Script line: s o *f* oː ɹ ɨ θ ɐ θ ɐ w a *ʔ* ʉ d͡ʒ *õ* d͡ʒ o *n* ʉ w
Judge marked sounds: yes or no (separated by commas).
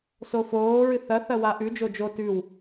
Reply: yes, yes, no, no